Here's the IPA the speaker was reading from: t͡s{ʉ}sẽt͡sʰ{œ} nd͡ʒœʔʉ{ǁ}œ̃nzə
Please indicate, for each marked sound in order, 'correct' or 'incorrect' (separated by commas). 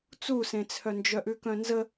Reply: incorrect, correct, incorrect